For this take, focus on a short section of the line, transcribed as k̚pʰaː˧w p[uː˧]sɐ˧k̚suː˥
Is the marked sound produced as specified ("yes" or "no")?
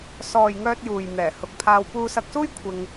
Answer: yes